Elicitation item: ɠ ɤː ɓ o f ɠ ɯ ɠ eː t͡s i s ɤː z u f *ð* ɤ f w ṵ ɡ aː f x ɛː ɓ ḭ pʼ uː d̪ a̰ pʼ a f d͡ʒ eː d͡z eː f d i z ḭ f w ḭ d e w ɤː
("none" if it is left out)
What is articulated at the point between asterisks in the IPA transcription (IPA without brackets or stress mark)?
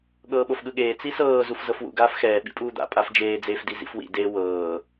z